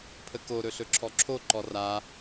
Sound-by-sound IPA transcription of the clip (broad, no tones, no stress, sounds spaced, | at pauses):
pʰ ə k o ɾ ɵ ɬ ɵ ǁʰ ɔ ǁʰ o ǃ ɔ r a